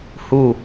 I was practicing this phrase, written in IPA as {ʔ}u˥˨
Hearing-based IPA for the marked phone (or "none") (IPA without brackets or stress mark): h